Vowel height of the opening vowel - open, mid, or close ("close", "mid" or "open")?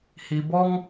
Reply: close